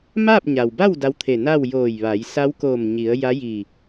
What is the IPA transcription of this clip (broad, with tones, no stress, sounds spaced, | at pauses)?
m aː˥˨ p̚ ɲ a˩ w b a˥˨ w d a˧˥ w t̪ʰ e˧˩ n aː˥˨ w j oː˧˩ j ʋ a˩˧ j s a˧˥ w k oː˧˩ m ɲ i˩˧ ə̯ j a˧˥ j iː˧˩